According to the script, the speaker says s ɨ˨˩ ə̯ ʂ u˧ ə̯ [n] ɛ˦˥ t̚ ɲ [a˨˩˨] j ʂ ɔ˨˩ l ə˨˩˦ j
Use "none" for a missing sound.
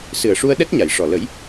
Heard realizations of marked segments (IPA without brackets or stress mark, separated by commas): ɗ, a˨˩˨